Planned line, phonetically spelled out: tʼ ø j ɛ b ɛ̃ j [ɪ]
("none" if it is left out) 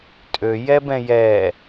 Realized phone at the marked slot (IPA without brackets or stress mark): ɛ